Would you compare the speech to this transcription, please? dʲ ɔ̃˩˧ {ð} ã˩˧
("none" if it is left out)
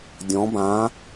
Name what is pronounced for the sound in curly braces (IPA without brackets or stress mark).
b